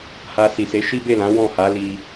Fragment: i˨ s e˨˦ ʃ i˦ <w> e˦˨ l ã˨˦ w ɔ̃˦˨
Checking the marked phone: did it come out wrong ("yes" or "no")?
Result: yes